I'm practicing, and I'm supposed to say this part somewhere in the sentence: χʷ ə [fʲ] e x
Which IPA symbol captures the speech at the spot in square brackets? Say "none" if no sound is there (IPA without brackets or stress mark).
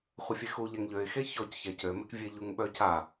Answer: fʲ